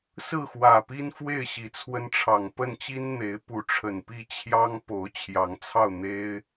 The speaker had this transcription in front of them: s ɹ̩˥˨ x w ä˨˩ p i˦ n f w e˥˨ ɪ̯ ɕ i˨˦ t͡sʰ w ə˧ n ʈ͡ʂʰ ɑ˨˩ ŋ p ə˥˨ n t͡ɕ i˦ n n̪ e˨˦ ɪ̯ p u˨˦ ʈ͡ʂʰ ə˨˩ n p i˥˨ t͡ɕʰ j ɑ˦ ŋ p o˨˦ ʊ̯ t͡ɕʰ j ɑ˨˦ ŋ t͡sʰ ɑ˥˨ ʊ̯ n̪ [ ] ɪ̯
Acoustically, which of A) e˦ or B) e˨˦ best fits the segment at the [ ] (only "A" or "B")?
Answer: A